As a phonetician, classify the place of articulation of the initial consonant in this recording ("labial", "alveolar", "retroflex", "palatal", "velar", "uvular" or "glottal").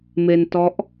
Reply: labial